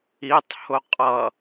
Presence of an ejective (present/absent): present